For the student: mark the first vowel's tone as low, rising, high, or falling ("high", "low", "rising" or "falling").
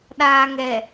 low